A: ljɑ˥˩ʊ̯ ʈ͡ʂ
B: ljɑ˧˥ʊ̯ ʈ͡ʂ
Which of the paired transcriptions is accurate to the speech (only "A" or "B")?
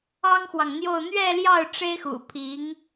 A